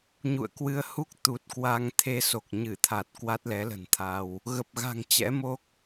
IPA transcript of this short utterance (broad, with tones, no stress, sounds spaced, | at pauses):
ɲ ṵ˧˨ ə̯ k w ɨ˧ ə̯ h u˦˥ k̚ t̪ u˨˩ t̚ k w a˧ ŋ t̪ʰ e˧ s o˨˩ k̚ ɲ ɨ˧˩ t̪ʰ a˨˩ t̚ k w a˦˥ t̚ l ɛ˨˦ l ə̤˨˩ n t̪ʰ a˧ w | ɣ ə˨˩ p̚ ɣ a̤˨˩ ŋ t͡ɕ ɛ̰˧˥ m o˦˥ k̚